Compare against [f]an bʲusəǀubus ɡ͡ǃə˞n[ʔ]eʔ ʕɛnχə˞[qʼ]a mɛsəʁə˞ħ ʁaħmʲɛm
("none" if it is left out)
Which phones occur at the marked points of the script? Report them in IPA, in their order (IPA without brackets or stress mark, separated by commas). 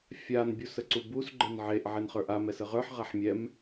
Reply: fʲ, ʕ, ʔ